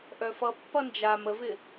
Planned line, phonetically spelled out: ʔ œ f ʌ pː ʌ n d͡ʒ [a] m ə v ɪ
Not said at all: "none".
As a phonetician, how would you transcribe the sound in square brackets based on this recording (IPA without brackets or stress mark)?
a